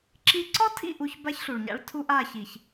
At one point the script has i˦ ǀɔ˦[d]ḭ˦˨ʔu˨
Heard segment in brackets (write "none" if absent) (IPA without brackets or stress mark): tʰ